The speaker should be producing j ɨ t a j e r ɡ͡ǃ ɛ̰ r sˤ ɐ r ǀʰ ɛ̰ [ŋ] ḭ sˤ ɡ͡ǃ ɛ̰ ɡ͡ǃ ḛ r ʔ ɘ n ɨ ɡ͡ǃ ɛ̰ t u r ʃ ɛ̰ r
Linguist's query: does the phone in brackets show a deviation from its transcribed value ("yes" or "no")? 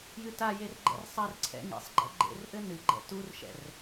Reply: no